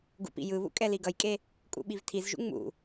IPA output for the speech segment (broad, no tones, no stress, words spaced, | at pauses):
ɡṵpḭjɯβṵ kʼɛliɡʌjkʼe | kʼṵɓivtʰizʒṵ ŋ͡mṵ